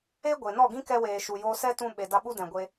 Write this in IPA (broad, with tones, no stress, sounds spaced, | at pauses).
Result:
e˦ ɡʷ e˨ n ɔ˦˨ ɡ ĩ˦ k ɛ˧ w eː˨ ʃ u˨ j oː˧ s ɛ˦ t ũ˧ ɓ e˨ d a˧ ɓ u˦ d ɛ̃˨ ɡʷ e˧